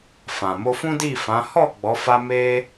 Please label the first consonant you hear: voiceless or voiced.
voiceless